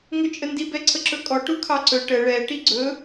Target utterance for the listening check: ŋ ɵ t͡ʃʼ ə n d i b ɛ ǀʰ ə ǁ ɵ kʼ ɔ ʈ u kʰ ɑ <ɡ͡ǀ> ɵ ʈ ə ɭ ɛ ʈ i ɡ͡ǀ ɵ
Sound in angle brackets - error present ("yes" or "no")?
yes